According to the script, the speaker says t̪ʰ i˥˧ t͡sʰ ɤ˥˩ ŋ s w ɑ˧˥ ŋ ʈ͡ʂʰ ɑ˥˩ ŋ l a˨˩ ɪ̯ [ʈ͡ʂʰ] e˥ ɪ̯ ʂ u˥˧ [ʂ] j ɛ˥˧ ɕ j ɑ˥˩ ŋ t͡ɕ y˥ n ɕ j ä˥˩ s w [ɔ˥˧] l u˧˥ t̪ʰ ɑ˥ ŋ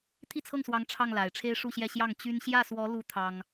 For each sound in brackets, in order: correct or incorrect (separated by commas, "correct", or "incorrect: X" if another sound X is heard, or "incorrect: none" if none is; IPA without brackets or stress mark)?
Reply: correct, incorrect: ɕ, incorrect: ɔ˧˥